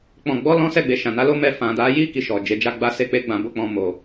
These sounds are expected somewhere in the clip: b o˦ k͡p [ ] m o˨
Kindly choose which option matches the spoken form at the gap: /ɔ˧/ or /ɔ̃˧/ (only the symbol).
ɔ̃˧